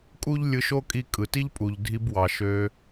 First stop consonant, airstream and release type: ejective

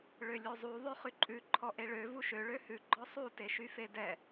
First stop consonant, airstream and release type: click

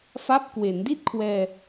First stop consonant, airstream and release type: plain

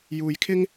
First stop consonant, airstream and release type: aspirated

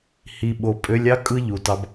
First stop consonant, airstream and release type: implosive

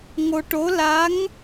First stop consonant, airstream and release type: plain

